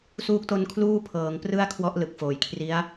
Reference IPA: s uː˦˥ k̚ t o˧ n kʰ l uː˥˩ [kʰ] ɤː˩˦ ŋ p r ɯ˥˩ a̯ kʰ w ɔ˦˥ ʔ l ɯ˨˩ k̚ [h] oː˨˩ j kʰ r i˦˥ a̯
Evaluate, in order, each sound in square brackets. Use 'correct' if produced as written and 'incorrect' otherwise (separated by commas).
incorrect, incorrect